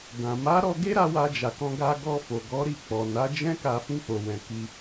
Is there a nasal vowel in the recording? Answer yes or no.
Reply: yes